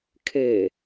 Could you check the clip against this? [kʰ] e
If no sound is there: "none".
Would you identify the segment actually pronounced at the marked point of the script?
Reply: kʰ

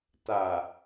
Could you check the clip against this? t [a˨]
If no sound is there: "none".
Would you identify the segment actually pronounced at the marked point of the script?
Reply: a˨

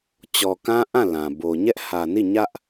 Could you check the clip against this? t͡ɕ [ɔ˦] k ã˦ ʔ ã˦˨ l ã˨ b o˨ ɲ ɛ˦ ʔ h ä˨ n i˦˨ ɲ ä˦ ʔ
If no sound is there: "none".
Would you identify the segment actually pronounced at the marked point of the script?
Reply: ɔ˨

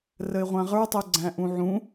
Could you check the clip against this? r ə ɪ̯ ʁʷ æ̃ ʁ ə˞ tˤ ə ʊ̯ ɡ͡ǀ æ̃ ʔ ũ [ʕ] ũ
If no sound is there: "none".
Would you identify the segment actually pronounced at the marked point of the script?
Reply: ʕ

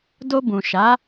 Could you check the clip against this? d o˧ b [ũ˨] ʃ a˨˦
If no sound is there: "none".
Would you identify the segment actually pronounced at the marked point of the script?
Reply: ũ˨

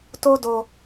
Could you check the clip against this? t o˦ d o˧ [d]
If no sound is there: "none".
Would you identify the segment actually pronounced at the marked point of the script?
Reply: none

